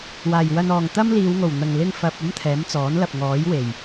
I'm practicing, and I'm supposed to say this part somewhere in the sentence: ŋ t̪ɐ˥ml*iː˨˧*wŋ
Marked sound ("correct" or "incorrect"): correct